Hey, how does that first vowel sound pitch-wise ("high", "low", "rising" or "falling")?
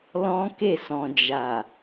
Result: high